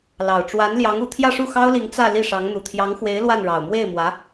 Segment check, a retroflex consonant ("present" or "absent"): present